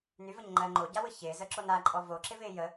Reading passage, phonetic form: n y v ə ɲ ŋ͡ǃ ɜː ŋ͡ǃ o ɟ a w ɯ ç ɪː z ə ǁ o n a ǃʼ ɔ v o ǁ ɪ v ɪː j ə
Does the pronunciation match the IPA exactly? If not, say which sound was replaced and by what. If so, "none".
none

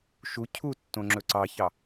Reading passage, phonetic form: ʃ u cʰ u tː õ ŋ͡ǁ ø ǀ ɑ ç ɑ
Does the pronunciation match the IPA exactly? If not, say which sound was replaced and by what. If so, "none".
ø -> ɵ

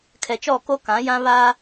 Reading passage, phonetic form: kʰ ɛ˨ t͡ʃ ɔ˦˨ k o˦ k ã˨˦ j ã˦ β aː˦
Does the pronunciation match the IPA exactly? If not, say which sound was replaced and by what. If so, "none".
none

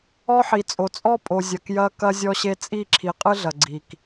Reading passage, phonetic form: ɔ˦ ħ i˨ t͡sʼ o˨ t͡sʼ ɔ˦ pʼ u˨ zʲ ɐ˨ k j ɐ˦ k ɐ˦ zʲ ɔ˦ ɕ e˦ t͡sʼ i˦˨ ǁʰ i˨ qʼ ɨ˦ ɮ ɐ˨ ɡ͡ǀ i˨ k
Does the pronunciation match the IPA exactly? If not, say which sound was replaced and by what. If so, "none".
u˨ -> o˨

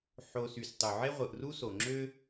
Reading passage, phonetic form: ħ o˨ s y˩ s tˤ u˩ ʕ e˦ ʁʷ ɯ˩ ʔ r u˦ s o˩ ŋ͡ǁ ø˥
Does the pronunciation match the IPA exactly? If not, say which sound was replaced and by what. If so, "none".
none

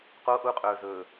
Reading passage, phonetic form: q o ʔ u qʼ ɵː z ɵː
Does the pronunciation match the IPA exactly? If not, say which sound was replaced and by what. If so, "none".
none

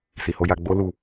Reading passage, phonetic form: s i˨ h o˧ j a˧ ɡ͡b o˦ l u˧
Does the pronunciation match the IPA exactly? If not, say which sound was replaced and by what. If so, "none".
none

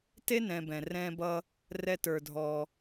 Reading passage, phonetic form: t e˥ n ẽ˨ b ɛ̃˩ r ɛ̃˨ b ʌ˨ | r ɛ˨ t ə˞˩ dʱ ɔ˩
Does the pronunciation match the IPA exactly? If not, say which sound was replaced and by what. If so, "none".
ẽ˨ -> ɛ̃˨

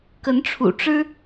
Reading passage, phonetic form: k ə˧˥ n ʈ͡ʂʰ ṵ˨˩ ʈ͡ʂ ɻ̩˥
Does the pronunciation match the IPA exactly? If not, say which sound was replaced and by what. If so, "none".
none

